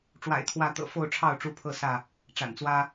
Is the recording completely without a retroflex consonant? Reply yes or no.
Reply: no